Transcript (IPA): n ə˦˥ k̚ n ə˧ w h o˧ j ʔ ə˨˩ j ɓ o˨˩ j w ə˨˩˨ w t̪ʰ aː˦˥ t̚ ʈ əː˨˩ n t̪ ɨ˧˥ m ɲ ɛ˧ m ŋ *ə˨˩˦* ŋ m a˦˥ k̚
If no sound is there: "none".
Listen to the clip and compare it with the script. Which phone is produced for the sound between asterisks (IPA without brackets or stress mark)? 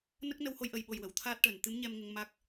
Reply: ə˧